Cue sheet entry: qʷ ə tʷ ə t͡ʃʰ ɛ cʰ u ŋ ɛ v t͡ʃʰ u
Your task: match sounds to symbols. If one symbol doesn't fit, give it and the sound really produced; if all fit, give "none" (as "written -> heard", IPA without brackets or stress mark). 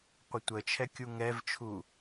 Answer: cʰ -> kʲ